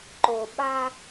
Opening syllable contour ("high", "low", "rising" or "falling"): low